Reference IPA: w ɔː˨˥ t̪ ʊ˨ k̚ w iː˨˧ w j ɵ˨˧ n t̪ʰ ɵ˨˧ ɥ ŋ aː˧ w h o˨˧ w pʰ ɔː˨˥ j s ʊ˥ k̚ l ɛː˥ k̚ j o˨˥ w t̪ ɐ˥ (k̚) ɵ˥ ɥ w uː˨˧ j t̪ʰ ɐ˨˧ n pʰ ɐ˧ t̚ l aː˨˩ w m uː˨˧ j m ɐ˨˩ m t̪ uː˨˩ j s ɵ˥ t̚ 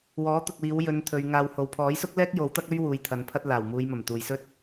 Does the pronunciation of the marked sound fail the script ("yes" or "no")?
no